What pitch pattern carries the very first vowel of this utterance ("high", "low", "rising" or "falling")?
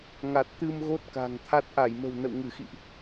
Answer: low